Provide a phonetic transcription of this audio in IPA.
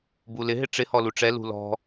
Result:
b u l ɪ ɦ ɪ ʈ͡ʂ ɪ h ɔ l u ʈ͡ʂ ɛ l ṳ l ɔ̤

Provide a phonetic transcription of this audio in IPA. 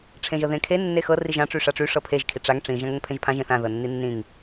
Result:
ʈ͡ʂʰ ẽ ʒ ɤ ð ẽ kʰ e nː e x ɤ r i ʒ ã ʈ͡ʂ y ʂ a ʈ͡ʂ y ʂ ɤ pʰ e ʒ kʰ i ʈ͡ʂ a ŋ ʈ͡ʂ ĩ ʒ ã ŋ ə ŋ pʰ ẽ ʒ pʰ ã ʒ ẽ θ ã ð ɤ nː i nː ĩ ŋ

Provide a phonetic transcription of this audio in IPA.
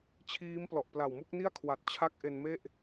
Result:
t͡ɕʰ iː˦˥ m p l ɔ˨˩ ʔ p l a˨˩ w m u˦˥ k̚ n i˥˩ a̯ kʰ w a˨˩ t̚ t͡ɕʰ a˦˥ k̚ ʔ e˧ n m e˥˩ ʔ

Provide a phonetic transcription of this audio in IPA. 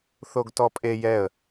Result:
θ o ɡ t ɔ pʼ e j ɛ ə̯

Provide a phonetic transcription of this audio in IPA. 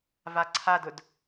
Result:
v a ǀʰ a d ʊ d

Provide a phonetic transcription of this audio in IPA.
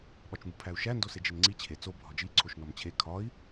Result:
ɓ ɒ t͡ʃ m u pʰ æ u̯ ʃ æ n d o s e d͡ʒ e n ŋ͡ǀ i t͡ɕʰ e t͡s o bʱ ɒ d͡ʒ i ǀʰ o ʃ n ɒ m t͡ɕʰ e kʰ ɒ i̯

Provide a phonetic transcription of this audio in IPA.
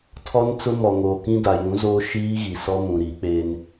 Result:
tʰ ɔ˦ n t͡s ʊ˦ m ɔ˨ ŋ oː˨ k ĩ˦ d a˨ j ũ˨˦ z oː˦ ʃ iː˦ ɣ i˨ s ɔ˦ m ũ˨ ɾ i˨˦ k͡p e˦ n

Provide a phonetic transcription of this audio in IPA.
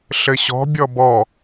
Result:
ɬ ɘ ɕ ɔ̤ bʲ ɔ b ɔ

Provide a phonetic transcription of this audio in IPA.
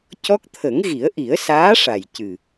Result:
c ɔ˦˥ k̚ t̪ʰ ə˨˩˦ ŋ ɣ i˨˩˦ ə̯ ʔ i˨˩˦ ə̯ s aː˧˥ ʂ a˨˩ j c ɨ˨˩

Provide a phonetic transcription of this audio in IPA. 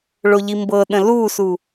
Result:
ɭ o ʎ i m b ɤ ɗ ə̃ l u s u

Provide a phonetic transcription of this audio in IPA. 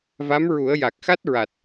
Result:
v a˧˥ m ɹ u˨˩˦ ə̯ j a˨˩ k̚ x a˦˥ t̚ ɹ a˨˩ t̚

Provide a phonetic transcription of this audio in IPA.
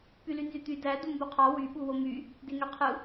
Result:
p y l y n z y t̪ y d æ d u m b u qʰ ɑ w y ɓ u w o m y | d e ŋ ø qʰ ɯ

